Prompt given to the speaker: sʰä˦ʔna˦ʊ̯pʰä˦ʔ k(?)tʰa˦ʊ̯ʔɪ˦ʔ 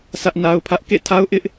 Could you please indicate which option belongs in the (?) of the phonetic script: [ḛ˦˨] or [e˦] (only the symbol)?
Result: ḛ˦˨